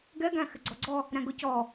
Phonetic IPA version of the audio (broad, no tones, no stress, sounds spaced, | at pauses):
ɡ ɛ ɡ æ̃ x ɪ ɡ͡ǀ ɔ ɡ͡ǀ ɔ | ɾ æ̃ ɡ ʊ c ɔ